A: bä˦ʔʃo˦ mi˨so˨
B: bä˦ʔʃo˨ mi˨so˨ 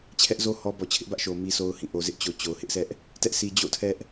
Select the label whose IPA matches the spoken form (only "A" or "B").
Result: B